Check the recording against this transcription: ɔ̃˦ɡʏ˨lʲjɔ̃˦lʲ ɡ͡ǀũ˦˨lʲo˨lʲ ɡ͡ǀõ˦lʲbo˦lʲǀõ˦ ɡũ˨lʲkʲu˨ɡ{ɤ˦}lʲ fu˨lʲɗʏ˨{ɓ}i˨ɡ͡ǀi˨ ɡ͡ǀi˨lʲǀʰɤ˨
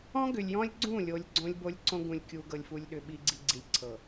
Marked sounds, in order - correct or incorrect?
incorrect: ɤ˨, correct

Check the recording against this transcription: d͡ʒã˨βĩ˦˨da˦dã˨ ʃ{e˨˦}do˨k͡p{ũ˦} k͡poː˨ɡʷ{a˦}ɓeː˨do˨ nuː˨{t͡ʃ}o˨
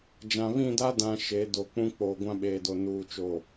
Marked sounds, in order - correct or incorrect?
correct, correct, incorrect: ã˦, correct

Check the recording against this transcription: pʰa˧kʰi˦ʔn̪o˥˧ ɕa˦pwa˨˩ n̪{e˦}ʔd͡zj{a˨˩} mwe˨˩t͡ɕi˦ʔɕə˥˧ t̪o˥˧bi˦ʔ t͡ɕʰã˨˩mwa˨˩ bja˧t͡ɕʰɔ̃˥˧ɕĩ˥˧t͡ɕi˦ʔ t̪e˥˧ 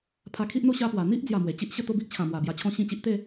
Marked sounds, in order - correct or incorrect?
incorrect: i˦, correct

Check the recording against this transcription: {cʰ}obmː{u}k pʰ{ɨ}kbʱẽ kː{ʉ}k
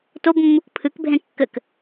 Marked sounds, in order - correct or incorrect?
incorrect: t, correct, correct, incorrect: ɘ

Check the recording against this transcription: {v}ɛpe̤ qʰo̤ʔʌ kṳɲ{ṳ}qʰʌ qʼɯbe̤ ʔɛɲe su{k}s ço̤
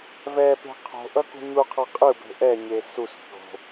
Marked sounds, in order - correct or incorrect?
correct, incorrect: u, incorrect: none

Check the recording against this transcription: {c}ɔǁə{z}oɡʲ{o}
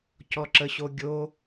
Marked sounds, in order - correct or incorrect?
correct, incorrect: ɕ, correct

